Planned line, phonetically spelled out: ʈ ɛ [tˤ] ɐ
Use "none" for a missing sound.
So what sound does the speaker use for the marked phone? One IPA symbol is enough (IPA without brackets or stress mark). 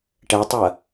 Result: tˤ